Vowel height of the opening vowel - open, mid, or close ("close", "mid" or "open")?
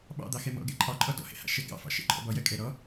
open